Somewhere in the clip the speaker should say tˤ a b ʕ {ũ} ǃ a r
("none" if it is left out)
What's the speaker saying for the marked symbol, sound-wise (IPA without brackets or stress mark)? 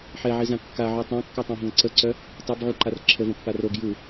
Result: u